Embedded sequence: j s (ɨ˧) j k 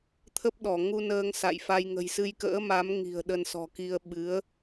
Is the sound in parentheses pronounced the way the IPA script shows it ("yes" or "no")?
yes